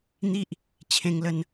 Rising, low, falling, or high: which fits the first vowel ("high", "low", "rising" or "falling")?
high